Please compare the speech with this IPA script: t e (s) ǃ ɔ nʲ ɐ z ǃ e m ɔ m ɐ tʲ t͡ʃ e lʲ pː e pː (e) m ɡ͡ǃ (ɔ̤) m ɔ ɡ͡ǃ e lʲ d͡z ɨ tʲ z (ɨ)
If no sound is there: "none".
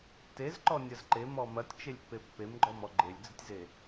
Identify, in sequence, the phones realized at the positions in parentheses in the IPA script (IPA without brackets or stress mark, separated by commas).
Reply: z, e, ɔ, e